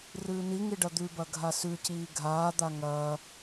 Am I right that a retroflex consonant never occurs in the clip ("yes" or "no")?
no